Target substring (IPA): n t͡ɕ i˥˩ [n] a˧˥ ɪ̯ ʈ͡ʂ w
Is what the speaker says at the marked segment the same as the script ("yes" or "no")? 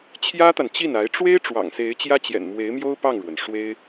yes